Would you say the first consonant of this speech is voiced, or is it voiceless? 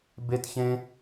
voiced